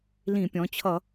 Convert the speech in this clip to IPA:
lĩ˧˩˧pʲɔ̃˩˧t͡ɕʰʌ˧˩˧

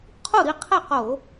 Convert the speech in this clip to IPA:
qʰu˥˩ɾi˥˩qʰɛ˥˩qo˧˩˧

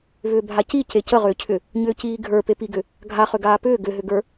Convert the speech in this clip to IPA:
vʏːbʱaci cecəʁʏːcʰʏ | ɲʏːciːɡʱə˞ pepiɡʏ | ɡʱaχʏ ɡaːpʏː ɡʏɦʏɡə˞

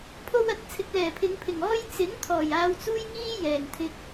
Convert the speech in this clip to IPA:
pʰo˧wɐ˨t̚ t͡sʰɪ˨k̚lɛː˨˩pʰɪ˨˧ŋpʰɪ˨˩ŋ ɔː˧j t͡sɪ˨˥ŋt̪ʰɔː˨˩j aː˧wt͡suː˥jŋiː˥ jɛː˨˩ŋt̪ʰɪ˧k̚

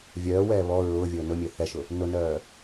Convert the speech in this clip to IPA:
vʲœːwɛː βɔ ɹʊː vʲʊːnʊmʲø θɛʃʊ | nʊnœː

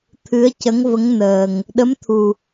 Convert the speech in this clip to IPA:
t̪ʰɨ˧˥ə̯cə˧˥ŋvə˧˥ŋ nəː˨˩ŋ | ɗə˧˥mt̪ʰu˨˩

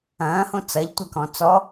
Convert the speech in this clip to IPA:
ɐ̃ːhõ t͡sɐʎtʷɐkɔ̃ t͡sɔ

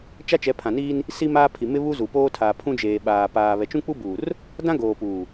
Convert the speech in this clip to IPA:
t͡ʃa˦t͡ʃɛ˨˦pʰã˨niː˦n | si˦maː˦pʰi˨ mɪ˦βu˦zu˨poː˦ tʰaː˨ pʰũ˦d͡ʒeː˨ɓaː˨ paː˨ βɛ˨t͡ʃũ˦k͡pu˦buː˨r | dã˦ɡoː˨ puː˨

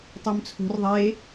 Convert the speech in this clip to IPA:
tˤømt͡sʰo̤r ðˤe

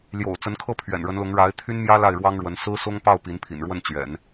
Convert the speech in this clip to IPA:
ljo̰˨˩ʊ̯t͡sə˧˥nkʰɤ˥˩ pʰɥɛ̰˨˩nɻə˧˥nlʊ˧˥ŋ ɻa˧˥ɪ̯ t̪ʰy˥nmjä˥ la˥˩ɪ̯ɻwɑ˥ŋɻwə˧˥n sɹ̩˥sʊ˥ŋpɑ˥˩ʊ̯ pi˧˥npʰḭ˨˩nɻwə˥˩n t͡ɕɥɛ̰˨˩˦n

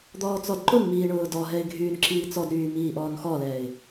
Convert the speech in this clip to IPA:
d̪ɔːt͡sɔdǃʊnmiː ɳʊːdɔɦɛɪ̯ ɡʱyːnǁiːt͡sɔdɾyː miːʔɔːnxɔlɛːɪ̯

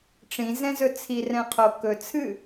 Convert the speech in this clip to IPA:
ʈ͡ʂĩ zɛ̃zɵt͡sʰi rɛ̃qʰo kɵ t͡sʰɨ

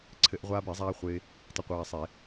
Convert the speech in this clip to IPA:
ǀʰɘ˧˩˧ʔʁʷaː˧be˧˩˧zˤaː˧ χʷɪː˧ | tˤɪ˧qʷaː˧sˤe˧˩˧

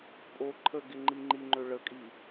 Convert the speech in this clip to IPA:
pʼo ǃʰə ɡɪŋ͡ǃiŋ͡ǃiŋ͡ǃø ɭəkʼi

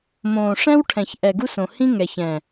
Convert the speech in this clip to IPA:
mõː˨ʂɛ̃˦w ʈʰɛ̃˨ç ʔɛ˨ɡu˦s õ˨ hĩ˦ŋɛ˨ç ɛ̃˨

